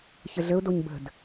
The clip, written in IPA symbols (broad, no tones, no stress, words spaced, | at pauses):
çəɮəʊ̯doɲ bə̤d